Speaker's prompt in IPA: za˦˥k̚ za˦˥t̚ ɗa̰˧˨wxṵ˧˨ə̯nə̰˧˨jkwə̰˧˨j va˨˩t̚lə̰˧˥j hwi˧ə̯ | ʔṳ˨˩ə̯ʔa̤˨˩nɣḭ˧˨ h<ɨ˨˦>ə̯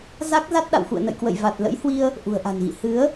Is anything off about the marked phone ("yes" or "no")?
no